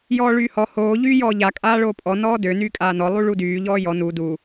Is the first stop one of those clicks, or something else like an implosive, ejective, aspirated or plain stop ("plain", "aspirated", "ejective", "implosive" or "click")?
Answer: ejective